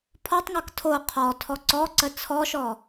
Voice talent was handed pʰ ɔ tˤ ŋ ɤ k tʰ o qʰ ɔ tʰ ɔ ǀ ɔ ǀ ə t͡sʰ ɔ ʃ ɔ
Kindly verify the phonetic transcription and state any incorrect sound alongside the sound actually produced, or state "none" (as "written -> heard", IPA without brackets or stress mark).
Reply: none